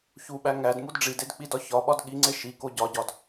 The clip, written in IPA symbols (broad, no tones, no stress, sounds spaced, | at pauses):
ç u ɓ æ ŋ æ d m u d ɖ͡ʐ i d e d k͡p i d ɒ ç ɒ ɓ ɒ d ɠ i ŋ͡ǀ e ʃ i k o ɟ ɒ ɟ ɒ d